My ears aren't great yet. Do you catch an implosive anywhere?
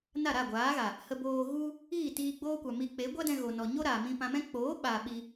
yes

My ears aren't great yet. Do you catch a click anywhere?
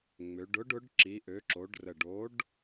yes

